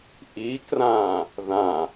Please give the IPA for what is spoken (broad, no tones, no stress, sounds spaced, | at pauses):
ʔ i k r ãː | ð ã